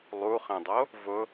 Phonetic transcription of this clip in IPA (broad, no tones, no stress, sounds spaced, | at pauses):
lˠ u χ ẽ dˤ o | v ʊ